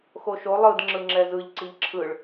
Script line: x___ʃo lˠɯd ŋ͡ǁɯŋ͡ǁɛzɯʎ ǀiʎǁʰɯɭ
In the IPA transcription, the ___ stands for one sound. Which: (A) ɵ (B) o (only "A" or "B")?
B